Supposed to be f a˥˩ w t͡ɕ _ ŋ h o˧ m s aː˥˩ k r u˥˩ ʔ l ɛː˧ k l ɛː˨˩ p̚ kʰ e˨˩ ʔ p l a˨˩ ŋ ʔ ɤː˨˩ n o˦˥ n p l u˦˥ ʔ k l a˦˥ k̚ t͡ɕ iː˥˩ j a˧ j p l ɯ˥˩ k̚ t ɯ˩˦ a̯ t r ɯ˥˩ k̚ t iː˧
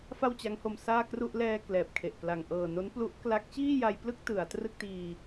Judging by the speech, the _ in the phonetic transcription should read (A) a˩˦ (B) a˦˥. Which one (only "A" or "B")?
B